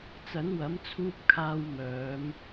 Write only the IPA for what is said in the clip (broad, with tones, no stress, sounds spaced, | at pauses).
t͡s ɐ˨˥ n w ɐ˨˥ m t͡sʰ uː˧ p̚ kʰ aː˧ w m œː˨˧ m